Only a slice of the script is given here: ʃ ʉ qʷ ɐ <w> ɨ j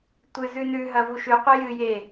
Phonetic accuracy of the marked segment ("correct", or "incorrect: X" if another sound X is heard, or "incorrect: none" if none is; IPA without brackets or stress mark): incorrect: j